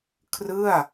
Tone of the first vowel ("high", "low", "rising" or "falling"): falling